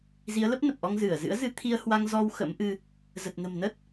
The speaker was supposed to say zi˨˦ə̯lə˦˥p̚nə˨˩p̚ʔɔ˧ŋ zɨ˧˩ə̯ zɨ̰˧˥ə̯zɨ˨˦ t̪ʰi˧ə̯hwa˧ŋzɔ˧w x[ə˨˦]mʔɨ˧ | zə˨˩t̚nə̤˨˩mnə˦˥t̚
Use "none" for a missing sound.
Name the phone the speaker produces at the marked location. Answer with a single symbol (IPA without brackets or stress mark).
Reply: ə̰˧˥